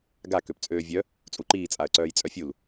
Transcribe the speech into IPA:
ɡ a k ø p t͡sʼ øː vʲ œ | t͡sʼ u ǃ iː t͡sʼ a ə̯ ǀ œː j t͡sʼ œ fʲ u l

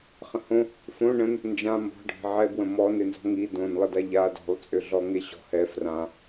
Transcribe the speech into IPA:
χ ə̃ h õ | f õ ɳ ə̃ n | n d͡ʒ ã m b ɔ̤ ɖʱ e̤ ʕ ɛ b w ə̃ m ɔ n e n z ɔ̤ ŋ i d õ n lˠ ə d a ʎ a d ɔ̤ lˠ t͡sʼ ø ɮ ɔ ŋ e ɕ ɔ̤ h ɛ f r ã

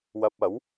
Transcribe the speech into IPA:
w ɐ˧ p̚ ɐ˨˥ w

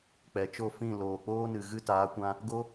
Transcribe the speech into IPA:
k͡p ɛ˨ t͡ʃ o˦˨ f ĩ˦˨ l oː˨ k͡p oː˦ n ɨ˨ ɣ ɨ˧ t aː˨˦ kʷ ã˧ | ɡ o˦

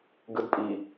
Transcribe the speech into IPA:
ɡ ɯ d pʼ i

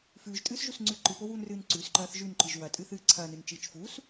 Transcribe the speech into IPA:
f ʉː ʒ tʼ ɨː s ʒ u s ŋ͡ǀ ʉ ǃ ɨ p o w uː n r ɨː n ǀ ʉ s ǃ ɐː θ ʒ ʉ n ǃ ɨ ʒ w ɐ tʼ ɨ θ ɨː ǀʰ ɐː n ɨ n t͡ʃ ɨː t͡ʃ f uː s

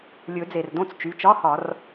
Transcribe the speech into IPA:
lʲ ɵ˨˩˦ d͡z e˩ r d õ˥˧ t͡s t͡ʃ y˩˧˩ t͡ʃ ɒ˧˥˧ h ɒ˨˩˦ r

